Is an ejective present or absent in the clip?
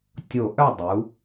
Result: absent